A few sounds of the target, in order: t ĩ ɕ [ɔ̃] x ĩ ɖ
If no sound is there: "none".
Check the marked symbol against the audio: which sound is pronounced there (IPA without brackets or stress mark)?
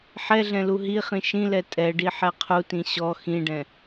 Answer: ɔ